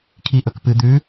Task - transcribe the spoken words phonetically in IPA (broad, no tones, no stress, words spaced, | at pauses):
kʰiʔɵkpɨ d̪ʉ